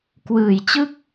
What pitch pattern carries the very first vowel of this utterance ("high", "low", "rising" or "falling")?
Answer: low